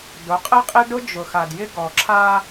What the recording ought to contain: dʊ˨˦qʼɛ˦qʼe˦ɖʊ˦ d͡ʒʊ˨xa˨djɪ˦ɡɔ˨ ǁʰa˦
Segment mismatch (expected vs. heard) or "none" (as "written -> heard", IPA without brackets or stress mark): none